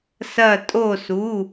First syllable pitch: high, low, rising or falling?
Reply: falling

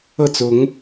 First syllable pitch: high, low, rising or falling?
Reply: falling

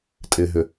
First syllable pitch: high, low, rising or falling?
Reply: low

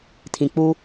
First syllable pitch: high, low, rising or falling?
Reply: low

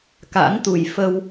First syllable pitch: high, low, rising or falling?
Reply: rising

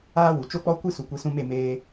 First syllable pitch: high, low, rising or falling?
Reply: high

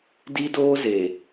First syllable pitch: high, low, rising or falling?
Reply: high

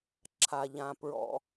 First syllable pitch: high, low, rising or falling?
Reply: low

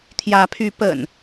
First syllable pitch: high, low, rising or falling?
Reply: rising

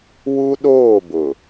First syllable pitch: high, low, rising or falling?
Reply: high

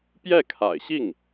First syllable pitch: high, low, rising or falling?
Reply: falling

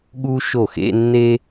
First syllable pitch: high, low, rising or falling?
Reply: high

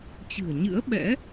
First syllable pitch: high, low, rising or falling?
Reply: low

